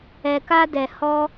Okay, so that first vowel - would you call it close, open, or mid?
mid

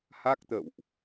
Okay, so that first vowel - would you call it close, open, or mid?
open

